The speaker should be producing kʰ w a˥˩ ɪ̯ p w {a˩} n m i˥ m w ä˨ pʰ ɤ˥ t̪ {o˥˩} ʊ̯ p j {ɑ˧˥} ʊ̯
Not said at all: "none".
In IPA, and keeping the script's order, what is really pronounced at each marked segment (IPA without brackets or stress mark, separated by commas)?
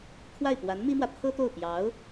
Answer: a˧˥, o˥˩, ɑ˧˥